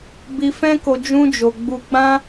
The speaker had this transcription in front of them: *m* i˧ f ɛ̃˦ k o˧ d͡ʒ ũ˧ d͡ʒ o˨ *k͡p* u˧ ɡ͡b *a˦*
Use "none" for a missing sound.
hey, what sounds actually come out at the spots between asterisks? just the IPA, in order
b, ɡ͡b, ã˦

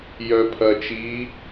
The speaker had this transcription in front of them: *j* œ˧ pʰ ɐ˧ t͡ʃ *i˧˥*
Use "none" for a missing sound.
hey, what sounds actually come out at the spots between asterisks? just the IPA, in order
j, iː˧˥

